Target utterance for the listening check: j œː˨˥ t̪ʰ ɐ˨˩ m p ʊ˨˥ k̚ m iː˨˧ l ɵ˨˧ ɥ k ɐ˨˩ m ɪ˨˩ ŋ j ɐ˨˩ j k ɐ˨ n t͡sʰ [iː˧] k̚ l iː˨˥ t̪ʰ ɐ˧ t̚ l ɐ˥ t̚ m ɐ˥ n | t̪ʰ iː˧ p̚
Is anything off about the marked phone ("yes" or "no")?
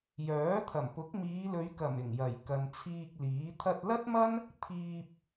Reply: no